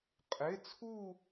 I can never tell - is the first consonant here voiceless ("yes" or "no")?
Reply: yes